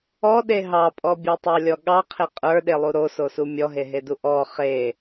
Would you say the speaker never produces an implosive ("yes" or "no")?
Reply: no